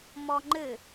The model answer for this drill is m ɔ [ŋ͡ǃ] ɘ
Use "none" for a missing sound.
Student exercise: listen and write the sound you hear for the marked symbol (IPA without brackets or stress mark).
ŋ͡ǃ